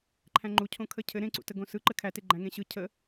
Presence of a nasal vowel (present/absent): present